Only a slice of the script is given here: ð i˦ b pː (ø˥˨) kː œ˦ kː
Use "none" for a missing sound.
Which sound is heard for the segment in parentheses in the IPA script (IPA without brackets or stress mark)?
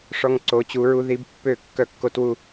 ø˥˨